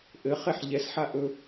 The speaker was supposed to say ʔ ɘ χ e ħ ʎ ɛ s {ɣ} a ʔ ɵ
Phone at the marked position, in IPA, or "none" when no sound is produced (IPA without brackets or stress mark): ħ